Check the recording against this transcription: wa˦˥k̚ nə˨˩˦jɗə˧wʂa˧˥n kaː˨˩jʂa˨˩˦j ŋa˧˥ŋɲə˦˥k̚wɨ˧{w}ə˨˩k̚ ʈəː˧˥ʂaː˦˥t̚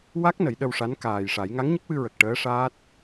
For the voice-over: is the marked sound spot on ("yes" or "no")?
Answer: no